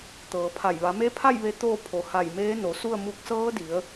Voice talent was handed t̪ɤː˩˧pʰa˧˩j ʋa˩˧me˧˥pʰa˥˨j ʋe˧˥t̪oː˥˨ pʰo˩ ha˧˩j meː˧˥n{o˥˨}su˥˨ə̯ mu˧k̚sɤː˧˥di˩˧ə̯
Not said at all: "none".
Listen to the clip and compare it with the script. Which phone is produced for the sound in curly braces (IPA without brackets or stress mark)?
o˩˧